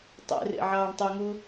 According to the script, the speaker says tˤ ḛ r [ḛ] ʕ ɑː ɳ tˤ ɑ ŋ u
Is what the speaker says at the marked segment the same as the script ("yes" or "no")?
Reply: yes